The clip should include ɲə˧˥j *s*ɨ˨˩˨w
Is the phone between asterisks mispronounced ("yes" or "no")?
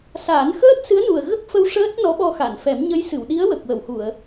no